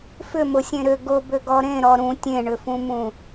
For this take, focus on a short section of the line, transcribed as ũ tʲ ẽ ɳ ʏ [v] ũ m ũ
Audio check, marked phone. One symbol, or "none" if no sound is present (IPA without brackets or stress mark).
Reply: f